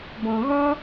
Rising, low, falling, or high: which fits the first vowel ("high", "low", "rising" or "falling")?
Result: low